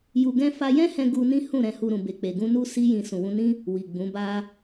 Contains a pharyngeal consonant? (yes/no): no